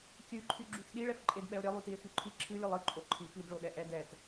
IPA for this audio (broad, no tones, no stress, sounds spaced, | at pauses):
kʲ ɨ ǃʰ y ɡ͡ǁ y x ɗ i ɭ ɛ f ǃʼ e d ɓ ɛ o̯ ɾʲ e lˠ y t i e̯ x y ǃʰ i ǁʰ ɨ lʲ ɨ lˠ ɨ ǃʼ o ǃʰ i p i d ɭ o ɗ ɛ ʔ ɛ d ɛ t